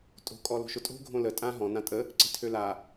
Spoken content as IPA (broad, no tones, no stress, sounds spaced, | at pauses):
tʼ o̤ kʼ ɔ l o̤ ʃ ʊ tʼ o̤ ɡʱ õ l ə tʼ ã ɦ ɔ̃ n ã tʼ ə | ǀ e̤ tʰ ø l a